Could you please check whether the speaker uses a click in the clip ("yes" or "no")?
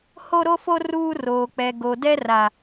no